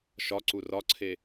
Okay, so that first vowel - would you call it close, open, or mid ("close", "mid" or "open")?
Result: open